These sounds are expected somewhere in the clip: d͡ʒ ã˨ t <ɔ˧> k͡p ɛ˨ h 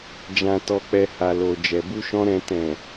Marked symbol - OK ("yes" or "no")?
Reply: no